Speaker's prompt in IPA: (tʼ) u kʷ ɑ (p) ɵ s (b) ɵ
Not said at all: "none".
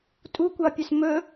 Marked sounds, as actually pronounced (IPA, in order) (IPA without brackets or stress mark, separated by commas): tʼ, pʲ, m